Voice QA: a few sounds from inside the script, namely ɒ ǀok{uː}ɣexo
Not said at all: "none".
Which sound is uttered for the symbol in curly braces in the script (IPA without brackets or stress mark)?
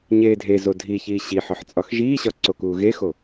uː